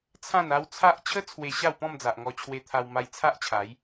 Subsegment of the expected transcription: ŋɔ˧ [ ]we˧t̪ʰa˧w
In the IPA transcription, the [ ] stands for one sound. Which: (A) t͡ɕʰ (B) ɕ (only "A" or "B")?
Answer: A